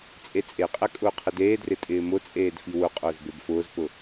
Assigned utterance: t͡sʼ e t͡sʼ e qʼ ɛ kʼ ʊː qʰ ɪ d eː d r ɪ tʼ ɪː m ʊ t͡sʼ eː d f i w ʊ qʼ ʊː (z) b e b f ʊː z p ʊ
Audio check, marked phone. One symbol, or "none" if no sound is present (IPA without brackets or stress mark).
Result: z